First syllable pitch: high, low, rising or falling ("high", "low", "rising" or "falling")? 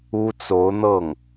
high